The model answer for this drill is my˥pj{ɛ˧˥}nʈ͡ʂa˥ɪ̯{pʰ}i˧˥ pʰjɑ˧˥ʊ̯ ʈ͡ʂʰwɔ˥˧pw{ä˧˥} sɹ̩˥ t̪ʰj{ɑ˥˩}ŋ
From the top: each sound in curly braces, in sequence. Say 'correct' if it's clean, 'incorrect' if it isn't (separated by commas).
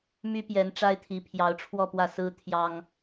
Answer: correct, incorrect, incorrect, incorrect